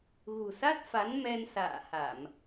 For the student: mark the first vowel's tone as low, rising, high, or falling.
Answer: low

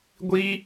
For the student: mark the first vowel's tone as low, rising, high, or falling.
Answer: high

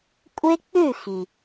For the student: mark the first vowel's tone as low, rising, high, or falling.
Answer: high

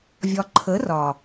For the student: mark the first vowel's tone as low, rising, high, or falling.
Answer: low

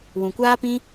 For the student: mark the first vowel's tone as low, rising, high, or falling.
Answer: low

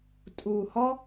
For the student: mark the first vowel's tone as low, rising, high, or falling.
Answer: low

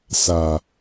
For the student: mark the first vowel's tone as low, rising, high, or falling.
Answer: low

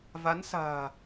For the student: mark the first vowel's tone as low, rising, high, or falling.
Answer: rising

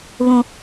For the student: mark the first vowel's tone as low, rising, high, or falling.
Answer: high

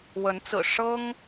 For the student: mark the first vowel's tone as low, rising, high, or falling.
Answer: rising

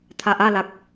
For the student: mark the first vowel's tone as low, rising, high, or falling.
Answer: low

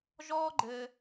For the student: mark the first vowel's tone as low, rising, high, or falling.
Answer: high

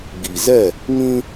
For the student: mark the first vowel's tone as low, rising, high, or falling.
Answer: low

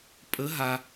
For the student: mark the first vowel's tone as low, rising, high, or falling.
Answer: rising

